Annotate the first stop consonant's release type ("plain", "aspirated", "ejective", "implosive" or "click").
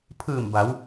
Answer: aspirated